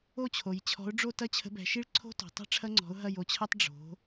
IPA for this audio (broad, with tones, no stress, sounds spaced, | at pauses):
o˥˨ t͡ɕʰ o˩˧ j t͡ɕʰ ɔ̤˨˥ ʊ̯ ɖ͡ʐ o˥˨ t ɐ˥˨ t͡ɕʰ ə̤˨˥ b ɛ̤˩˧ ʃ i˥ ɭ ǀʰ o̤˥ t ɔ̤˩˧ tˤ ɛ̤˥ ʈ͡ʂʰ ɐ˥ ŋ͡ǀ ɔ̤˨˥ ʊ̯ ɦ ɐ˥˨ j o˨˥ t͡ɕʰ ɐ˥ tˤ ɖ͡ʐ o̤˩˧